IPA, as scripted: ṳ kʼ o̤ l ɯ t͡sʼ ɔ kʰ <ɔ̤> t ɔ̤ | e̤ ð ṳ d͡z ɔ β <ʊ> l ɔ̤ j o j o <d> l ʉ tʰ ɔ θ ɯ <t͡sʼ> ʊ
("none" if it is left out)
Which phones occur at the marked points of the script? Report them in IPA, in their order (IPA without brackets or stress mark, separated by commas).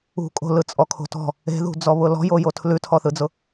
o̤, ʊ, tʰ, d͡z